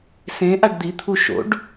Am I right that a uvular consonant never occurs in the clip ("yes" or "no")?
yes